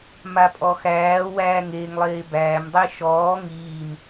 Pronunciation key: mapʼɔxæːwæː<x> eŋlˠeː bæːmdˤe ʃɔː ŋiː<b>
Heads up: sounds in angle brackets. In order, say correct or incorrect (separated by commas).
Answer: incorrect, incorrect